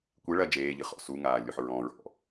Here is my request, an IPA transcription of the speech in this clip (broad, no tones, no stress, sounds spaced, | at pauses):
kʷ e ɭ ɐ d͡ʒ eː ʎ ɨ χ ɔ̰ s u ŋ aː lʲ o ħ ɹ ɔ̃ ɹ ɔ̰